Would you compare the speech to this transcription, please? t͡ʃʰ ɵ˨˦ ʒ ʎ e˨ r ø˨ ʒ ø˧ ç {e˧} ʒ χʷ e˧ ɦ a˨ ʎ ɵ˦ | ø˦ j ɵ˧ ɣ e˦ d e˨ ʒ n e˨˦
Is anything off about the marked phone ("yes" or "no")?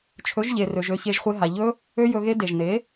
no